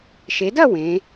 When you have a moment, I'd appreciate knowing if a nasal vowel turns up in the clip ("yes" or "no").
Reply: yes